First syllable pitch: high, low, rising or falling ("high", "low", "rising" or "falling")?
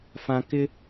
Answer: low